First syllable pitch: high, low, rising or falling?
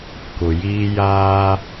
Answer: low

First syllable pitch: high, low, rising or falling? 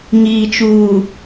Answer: low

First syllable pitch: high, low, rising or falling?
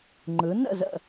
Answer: rising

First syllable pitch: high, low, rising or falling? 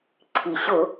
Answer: low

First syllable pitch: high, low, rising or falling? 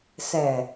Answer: low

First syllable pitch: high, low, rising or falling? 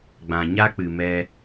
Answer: low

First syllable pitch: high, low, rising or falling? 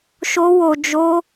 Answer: high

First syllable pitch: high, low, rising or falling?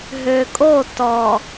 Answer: low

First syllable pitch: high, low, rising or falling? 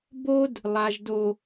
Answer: high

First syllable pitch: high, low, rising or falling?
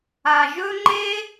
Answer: low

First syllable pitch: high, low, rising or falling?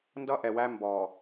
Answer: high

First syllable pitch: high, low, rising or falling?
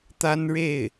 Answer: high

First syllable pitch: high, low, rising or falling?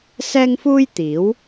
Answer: high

